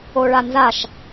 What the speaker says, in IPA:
o ɭ a n z a ʃ

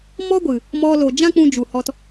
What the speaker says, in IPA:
m ɔ˦ ɡʷ ɨ˨ | m ɔ˧ l o˨ d͡ʒ ã˦ k͡p ũ˧ d͡ʒ u˨ h ɔ˧ t

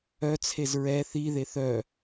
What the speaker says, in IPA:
œ t͡sʰ e z ɹ ɛ θ i ð e θ œ

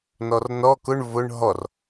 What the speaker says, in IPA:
n ɔ r n ɔ k ʊ ɳ v ʊ ɳ ɦ ɔ r

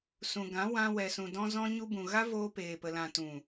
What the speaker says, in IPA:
s ũ˨ ɡ ã˨˦ w ã˧ w ɛ˨ s ũ˨ d ɔ̃˦ z ɔ̃˦ ɲ u˦ b ũ˨ ɣ a˦ v oː˧ p eː˨ p ə˨ l ã˨ t ũ˨

